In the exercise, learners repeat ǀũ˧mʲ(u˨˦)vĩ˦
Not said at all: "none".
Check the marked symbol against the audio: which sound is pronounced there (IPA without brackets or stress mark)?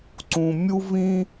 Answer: u˦